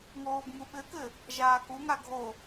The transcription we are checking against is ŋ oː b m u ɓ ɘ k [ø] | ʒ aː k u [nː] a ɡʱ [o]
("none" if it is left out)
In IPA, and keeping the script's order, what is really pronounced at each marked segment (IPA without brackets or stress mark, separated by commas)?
ɘ, ŋ, o